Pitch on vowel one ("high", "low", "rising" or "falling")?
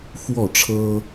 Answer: falling